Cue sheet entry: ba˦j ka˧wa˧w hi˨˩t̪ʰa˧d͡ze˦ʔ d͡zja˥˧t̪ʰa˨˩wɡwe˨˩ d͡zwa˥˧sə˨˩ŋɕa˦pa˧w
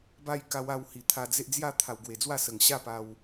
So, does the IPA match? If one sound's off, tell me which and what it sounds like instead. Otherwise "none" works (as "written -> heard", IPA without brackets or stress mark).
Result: none